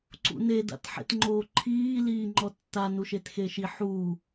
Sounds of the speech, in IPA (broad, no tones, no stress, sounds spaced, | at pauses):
ǀ ṵ n e d a̰ t ħ ḛ t ŋ͡ǃ oː ǃʰ iː l iː ŋ͡ǃ ɔ tː a n u ʃ e t x e ʃ i ħ u